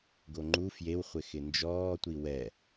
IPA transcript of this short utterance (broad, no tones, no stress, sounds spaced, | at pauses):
ɡ o ŋ͡ǃ u f j e w χʷ ɪ x ɪ n d͡ʒ ɔː tʷ i w ɛ